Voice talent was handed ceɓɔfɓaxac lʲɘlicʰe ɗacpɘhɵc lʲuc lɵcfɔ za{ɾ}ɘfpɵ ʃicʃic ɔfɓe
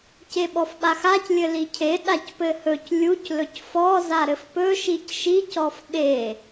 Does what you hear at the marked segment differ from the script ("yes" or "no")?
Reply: no